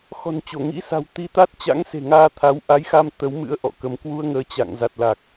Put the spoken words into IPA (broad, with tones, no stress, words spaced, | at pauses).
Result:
xɔ̤˨˩nt͡ɕo˧˩ŋḭ˧˥sa̤˨˩w t̪i˧t̪a˦˥t̚ t͡ɕa̰˧˥ŋse̤˨˩ŋaː˧ t̪ʰa˨˦wʔa˨˦jxa˧m t̪ə˨˦w mɨ̰˧˥ə̯ ʔɔ̰˧˨kə˧m kwu˧ə̯ŋəː˨˦t͡ɕa̰˧˨ŋza˨˩t̚ la˨˩k̚